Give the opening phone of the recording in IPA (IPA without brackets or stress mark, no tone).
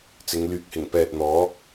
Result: t͡s